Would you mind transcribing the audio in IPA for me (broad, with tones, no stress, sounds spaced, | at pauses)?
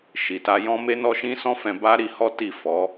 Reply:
ʃ i˨ t a˧ j ɔ̃˦ m e˦ n ɔ˦ ʃ ĩ˦ s ɔ̃˦ f ɛ̃˧ b a˦ ɾ i˧ h ɔ˦ t i˦˨ f ɔ˨˦